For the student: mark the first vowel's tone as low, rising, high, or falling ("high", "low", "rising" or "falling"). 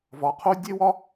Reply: rising